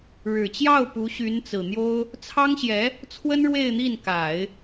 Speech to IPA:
ɻ ɻ̩˨˩ t͡ɕ j ɑ˥˩ ʊ̯ p u˧˥ ɕ y˧˥ n t͡s ɹ̩˨˩ n̪ j o˥ ʊ̯ | t͡sʰ ɑ˥ ŋ ɕ j ɛ˧˥ | t͡sʰ w ə˥ n ɻ w e˥˧ ɪ̯ n̪ i˥˩ n k a˨˩˦ ɪ̯

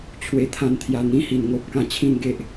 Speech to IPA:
t͡ɕʰ w e˦ t̪ʰ ã˥˧ n t̪ʰ j a˥˧ n̪ ĩ˦ h i˨˩ n ŋ o˦ p̚ k ã˧ t͡ɕʰ ĩ˥˧ n ɡ e˦ ʔ

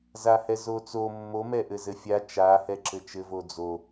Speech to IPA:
z a h ɛ z o t͡s o mː o m ɛ ʔ ɘ z ɘ fʲ a t͡ʃ a h ɛ ǁ ɘ t͡ʃ ɘ v o d͡z o

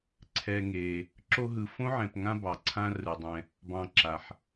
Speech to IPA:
ǀʰ ɛ˨ ŋ e˩ | ǁ o˦ ɦ ɯ˨ f õ˥ ʕ ɛ̃˩ p ŋ ã˦ b ɑ˩ ǀʰ ã˦ r ɯ˩ dˤ ɛ̃˨ | b ɑ̃˨ ǁ a˩ ħ

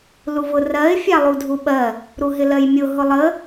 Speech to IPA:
l u v ʊ r ɜ ɪ̯ fʲ a lˠ u dʱ u ɓ ɜ | ɾ u ɦ ɪ l ɜ j mʲ ʊ ɦ ʊ lˠ ə

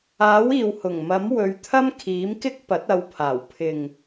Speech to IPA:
aː˨˥ w iː˨ w h ʊ˨˩ ŋ m ɐ˨˥ m w ɵ˨˧ ɥ t̪ʰ ɐ˥ m kʰ iː˨˥ m k ɪ˥ k̚ p ɐ˨˥ t̚ ɐ˨˧ w pʰ aː˨˩ w pʰ ɪ˨ ŋ

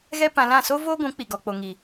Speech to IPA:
ɣ ɛ˦ p ã˧ l ã˦˨ s o˦ v oː˦ ɡʷ ũ˨˦ k͡p i˨ ɡ ɔ˨ k͡p o˨ ŋ i˨

